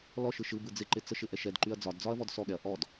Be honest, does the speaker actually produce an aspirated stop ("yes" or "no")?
no